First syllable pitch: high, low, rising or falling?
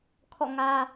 falling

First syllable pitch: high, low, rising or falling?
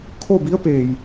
falling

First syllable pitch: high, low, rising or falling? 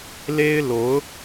high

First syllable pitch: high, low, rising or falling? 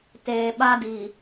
low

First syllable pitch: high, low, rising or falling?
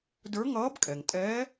rising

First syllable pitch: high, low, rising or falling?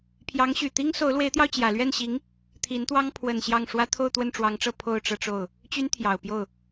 rising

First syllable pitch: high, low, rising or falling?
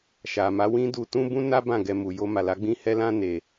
low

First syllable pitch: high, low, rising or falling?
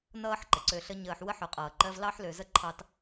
high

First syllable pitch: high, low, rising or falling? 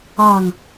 falling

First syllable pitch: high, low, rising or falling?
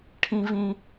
high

